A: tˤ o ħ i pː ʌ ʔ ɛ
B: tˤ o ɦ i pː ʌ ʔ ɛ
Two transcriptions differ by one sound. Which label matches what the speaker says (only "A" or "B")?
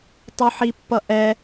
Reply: A